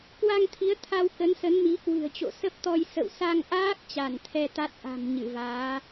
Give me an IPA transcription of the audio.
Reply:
k w a˧ ŋ t̪ʰ i˨˦ ə̯ t̪ʰ a˧ w k ə˨˦ n s ə˨˦ n m i˨˦ k w ɨ̤˨˩ ə̯ t͡ɕ o̰˧˨ s ə˦˥ p̚ t̪ ɔ˧ j s ə̰˧˨ w s a˧ ŋ ʔ aː˦˥ k̚ t͡ɕ a˧˩ n t̪ʰ ɛ˧ t̪ a˦˥ t̚ ʔ a̤˨˩ m ɲ ɨ˧˩ v aː˨˦

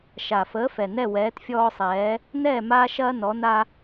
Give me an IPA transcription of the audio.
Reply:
ʃ a˨˩ f əː˨˥ f ɛ˨˩ n ɛ˥˨ w ɛː˨˥ t fʲ ɔː˦ sˤ ɛː˨˥ | n ɛː˥˨ m aː˦ ʃ ɐː˦ n ɔ˨˥ n a˦

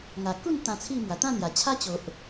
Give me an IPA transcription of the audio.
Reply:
ŋ a˨˩ k u˥˧ n t̪ ã˧ t͡sʰ i˥˧ m w a˨˩ t̪ ã˥˧ n̪ j a˨˩ t͡ɕʰ a˦ t͡ɕ o˨ ʔ

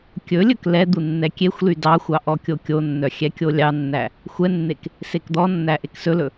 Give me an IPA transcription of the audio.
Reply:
kʲ ɵ lʲ ɵ k l ɛ d̪ u nː ɛ kʲ e xʷ l y d ɑ xʷ ɑ ʔ ɔ kʲ o kʲ o nː œ xʲ ɛ kʲ o lʲ ɑ nː æ | xʷ ɛ nː e k | s e k d̪ ɔ nː æ ʔ e k s ɵ l ɵ

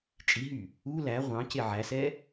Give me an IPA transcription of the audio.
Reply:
t͡ʃʼ i ɦ y | u l æ ʁʷ ɑ̃ c e ʕ æ s ɛ

